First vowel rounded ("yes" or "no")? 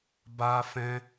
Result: no